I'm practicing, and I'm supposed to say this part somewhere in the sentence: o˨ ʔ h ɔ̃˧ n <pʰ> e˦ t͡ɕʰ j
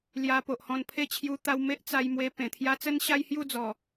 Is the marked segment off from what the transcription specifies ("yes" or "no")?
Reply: no